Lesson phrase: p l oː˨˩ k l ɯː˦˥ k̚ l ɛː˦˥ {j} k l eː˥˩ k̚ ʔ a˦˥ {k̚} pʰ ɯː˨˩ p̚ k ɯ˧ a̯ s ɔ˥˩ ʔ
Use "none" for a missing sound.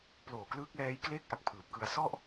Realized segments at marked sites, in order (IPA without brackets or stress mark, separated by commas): j, k̚